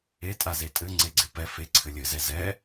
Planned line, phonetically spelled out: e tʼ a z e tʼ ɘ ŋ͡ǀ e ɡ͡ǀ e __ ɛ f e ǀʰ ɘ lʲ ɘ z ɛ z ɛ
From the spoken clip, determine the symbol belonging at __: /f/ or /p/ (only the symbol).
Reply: p